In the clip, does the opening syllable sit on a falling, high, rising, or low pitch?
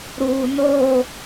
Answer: low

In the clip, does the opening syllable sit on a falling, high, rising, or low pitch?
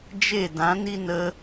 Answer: falling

